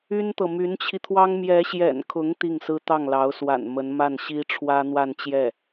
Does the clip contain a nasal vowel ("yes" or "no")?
no